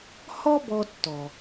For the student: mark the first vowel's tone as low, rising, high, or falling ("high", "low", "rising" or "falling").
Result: high